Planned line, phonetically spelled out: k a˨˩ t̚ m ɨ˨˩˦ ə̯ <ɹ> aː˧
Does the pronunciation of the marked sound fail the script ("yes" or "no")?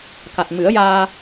yes